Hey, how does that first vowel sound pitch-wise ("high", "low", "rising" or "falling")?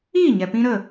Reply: falling